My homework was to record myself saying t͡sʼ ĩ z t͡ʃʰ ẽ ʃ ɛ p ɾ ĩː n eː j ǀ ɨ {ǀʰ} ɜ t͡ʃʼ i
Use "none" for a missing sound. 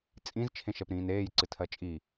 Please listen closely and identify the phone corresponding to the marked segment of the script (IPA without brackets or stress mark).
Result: tʰ